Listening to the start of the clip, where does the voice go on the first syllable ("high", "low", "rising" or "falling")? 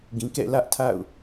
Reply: low